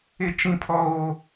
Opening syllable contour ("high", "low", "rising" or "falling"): high